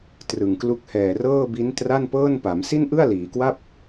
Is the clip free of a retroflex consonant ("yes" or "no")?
yes